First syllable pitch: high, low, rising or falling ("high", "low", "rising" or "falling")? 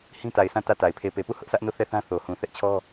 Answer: high